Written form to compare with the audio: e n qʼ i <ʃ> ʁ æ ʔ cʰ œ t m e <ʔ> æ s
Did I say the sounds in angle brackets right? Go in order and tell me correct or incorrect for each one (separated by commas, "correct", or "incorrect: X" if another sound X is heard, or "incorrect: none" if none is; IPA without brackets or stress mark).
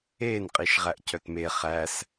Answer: correct, incorrect: χ